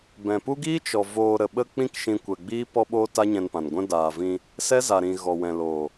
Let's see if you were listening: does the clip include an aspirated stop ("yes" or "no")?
no